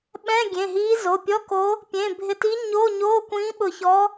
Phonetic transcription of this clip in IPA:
ɓɛ̃˧˥˧ɡʲẽ˩˧˩ɦiː˧˥ zo˩˧˩pʲɔ˧˥˧ko˧˥ | pʲẽ˩˧˩bʱɪ˧˩tiː˧˥ ɲo˧˥˧ɲoː˧˥˧ kʷĩː˧˥ɓʊ˧˩çɔ˧˥

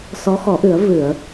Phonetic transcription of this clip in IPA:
sɔ˧˥xɔ˨˩˦ʔɨ˨˩˦ə̯ vɨ˨˩˨ə̯

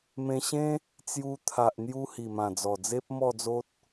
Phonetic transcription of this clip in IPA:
mẽ˧ɕẽ˦ | t͡sju˧ t̪ʰa˨ʔn̪ju˧ hi˨˩mã˨˩d͡zɔ˨˩d͡ze˦p̚ mɔ˥˧d͡zo˦t̚

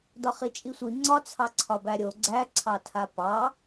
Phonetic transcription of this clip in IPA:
dɒχit͡ʃʼisʷi ŋ͡ǀɒ t͡sʰɑǀʰɒbæɾʲo ɡ͡ǀæǀʰɑtʰa pɑ

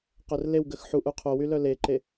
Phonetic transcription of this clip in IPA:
qœrlewɡəx ħuʔu qʰowy lœleǃe

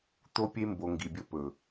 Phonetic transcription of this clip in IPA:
t̪o˦pʲe˦mbo˨ ŋɡi˨bʲɵ˦pɵ˨

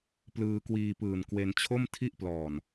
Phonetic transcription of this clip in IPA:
plɯː˧kwiː˧pɯː˨˩nkwe˧n t͡ɕʰo˥˩mtʰi˥˩ʔplɔː˨˩n

